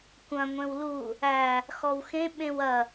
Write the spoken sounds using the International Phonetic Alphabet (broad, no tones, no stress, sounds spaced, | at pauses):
kʷ ɐ̃ ŋʷ ẽ w l u | æ | x ɔ w x ẽ ɓ ẽ w ɐ